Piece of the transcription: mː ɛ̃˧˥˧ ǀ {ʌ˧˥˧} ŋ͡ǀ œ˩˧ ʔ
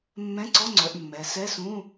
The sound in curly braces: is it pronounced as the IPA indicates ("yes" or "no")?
no